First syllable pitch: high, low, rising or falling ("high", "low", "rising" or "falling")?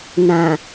low